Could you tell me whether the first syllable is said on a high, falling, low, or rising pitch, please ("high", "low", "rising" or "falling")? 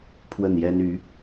falling